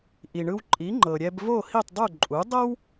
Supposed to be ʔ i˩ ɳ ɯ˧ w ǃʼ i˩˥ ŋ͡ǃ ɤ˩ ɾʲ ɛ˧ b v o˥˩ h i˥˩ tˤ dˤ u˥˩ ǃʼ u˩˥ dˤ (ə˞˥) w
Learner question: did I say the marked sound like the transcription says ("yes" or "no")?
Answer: no